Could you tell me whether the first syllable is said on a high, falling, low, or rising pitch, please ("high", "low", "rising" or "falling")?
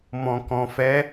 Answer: low